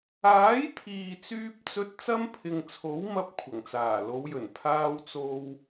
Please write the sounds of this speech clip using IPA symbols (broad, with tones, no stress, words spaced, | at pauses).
aː˨˥j t̪ʰiː˨t͡syː˧p̚t͡sɵ˧t̚ t͡sɐ˥mpʰɪ˨ŋt͡sʰo˨˥wmɐ˧p̚ kʷʰɐ˨˩ŋt͡saː˨˩lo˨˧wjɵ˨˩n pʰaː˧wt͡so˧w